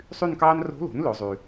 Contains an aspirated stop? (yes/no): no